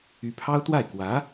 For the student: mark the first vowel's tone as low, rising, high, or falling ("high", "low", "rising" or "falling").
rising